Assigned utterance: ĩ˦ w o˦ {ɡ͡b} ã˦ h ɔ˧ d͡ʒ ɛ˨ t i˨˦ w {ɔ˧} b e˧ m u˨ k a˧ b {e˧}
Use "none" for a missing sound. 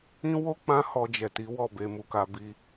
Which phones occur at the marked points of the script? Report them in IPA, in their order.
k͡p, ɔ˦˨, i˧

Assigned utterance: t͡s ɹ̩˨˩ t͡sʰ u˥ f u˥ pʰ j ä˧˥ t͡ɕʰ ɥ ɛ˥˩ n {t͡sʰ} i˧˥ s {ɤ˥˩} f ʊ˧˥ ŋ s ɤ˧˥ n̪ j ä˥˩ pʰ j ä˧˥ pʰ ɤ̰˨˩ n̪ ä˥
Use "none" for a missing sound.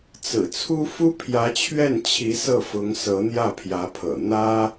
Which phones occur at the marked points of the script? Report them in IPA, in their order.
t͡ɕʰ, ɤ˥˩

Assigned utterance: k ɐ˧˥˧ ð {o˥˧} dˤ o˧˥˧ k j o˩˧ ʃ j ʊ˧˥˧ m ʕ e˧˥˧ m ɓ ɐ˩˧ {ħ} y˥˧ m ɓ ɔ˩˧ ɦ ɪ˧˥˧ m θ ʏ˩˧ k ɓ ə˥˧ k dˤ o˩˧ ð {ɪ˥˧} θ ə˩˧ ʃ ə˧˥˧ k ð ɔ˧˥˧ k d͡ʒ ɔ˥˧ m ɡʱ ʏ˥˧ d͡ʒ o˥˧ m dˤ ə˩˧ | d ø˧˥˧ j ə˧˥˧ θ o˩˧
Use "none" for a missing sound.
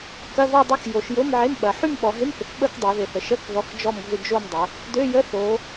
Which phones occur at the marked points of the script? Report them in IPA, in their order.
ɔ˥˧, ħ, ɪ˩˧

